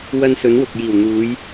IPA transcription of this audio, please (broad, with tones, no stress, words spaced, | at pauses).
wɐ˧n sɵ˨˥nwʊ˨k̚ jiː˨˩wn̪uː˨˧j